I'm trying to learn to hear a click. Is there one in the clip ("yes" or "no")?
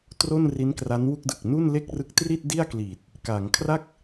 no